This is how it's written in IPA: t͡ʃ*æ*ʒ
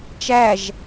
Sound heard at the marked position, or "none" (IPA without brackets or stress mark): æ